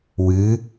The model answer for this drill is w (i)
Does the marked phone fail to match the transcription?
yes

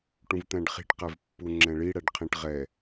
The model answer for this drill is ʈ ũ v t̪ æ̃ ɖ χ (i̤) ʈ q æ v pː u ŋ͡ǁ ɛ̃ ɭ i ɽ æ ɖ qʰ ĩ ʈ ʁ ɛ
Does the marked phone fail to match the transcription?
no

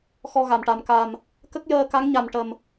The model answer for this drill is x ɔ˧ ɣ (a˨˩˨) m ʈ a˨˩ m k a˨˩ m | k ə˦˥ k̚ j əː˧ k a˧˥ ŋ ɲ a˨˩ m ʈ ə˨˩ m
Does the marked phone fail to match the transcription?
no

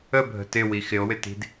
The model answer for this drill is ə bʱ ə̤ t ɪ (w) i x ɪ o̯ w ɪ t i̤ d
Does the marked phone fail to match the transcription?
no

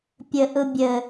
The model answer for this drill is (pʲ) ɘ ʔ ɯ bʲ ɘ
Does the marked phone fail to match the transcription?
no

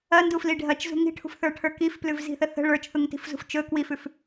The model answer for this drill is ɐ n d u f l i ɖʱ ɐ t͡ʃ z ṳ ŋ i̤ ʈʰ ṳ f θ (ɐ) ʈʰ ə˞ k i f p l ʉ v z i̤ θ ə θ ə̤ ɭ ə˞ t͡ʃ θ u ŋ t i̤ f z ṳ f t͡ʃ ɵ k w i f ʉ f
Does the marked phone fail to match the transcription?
yes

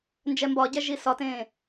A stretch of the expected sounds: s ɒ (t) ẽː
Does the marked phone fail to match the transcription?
no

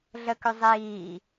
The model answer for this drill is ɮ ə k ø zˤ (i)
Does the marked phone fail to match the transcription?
yes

